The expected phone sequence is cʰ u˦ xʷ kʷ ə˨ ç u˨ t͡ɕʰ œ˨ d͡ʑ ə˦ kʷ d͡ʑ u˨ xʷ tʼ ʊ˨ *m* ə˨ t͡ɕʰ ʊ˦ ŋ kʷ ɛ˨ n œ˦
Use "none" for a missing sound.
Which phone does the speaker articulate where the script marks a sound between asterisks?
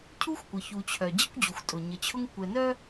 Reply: ɲ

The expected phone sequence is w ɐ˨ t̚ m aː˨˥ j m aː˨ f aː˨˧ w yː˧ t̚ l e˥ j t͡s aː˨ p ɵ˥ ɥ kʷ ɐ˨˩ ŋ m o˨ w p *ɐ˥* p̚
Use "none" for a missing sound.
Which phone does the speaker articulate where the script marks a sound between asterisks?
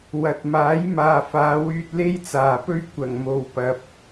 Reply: ɐ˨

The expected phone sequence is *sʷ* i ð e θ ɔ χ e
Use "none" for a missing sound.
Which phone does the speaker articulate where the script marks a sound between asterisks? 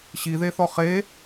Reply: ɕ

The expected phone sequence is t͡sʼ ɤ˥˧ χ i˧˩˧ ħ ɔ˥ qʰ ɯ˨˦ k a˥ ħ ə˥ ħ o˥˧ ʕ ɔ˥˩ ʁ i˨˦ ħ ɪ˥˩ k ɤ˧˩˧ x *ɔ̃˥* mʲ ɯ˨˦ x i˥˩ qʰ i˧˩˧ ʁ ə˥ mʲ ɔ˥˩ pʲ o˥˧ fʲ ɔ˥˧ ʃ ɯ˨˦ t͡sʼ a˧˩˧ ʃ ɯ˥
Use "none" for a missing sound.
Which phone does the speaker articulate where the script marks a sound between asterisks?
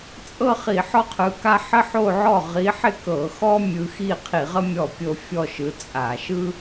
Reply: ɔ˥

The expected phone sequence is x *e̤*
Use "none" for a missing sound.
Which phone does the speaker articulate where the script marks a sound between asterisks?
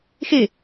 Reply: e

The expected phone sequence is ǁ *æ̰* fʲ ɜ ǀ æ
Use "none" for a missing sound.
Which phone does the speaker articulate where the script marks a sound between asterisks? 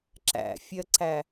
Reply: æ̰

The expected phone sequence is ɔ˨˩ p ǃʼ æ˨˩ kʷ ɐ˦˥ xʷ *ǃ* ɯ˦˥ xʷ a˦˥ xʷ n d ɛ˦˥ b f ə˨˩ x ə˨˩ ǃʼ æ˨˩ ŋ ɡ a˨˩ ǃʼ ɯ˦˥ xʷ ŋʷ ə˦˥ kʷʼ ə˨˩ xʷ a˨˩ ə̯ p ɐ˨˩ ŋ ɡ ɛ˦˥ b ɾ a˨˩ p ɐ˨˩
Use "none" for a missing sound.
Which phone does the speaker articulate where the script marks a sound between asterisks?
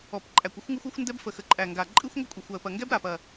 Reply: ŋ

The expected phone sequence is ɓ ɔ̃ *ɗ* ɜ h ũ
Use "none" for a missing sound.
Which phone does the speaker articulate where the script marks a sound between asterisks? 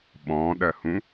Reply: ɗ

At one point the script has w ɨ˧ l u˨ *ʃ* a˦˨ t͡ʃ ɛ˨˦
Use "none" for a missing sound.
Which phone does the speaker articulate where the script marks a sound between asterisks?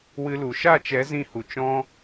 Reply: ʃ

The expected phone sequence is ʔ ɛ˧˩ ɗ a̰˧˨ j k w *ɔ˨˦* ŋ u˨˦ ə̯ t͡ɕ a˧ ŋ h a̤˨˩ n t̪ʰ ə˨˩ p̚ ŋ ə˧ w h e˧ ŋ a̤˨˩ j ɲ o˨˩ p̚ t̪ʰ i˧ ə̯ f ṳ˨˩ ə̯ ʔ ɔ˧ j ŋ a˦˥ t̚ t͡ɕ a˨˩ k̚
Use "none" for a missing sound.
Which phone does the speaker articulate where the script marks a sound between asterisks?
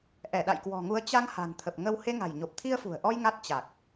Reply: ɔ̤˨˩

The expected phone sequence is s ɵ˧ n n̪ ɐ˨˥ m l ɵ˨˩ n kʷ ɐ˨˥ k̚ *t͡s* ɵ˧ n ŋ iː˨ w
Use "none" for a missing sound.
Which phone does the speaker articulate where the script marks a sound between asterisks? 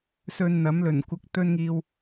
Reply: t̪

